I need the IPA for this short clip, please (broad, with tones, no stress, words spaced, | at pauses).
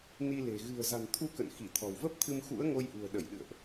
ni˧le̤˨˩ ɣɨ̤˨˩ə̯za̤˨˩n t̪ʰu˧ kə̰˧˨n xi˧˩t̪ʰɔ̤˨˩wvə˦˥p̚t̪ʰɨ˧m xṵ˧˥ə̯ŋo˧jʔṳ˨˩ə̯ ɗə˧˩jɗɨ̰˧˨ə̯ʔ